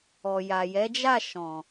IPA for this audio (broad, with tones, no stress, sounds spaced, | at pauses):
ɔ˨ j a˨ j ɛ˨˦ d͡ʒ a˦˨ ʃ ɔ̃˨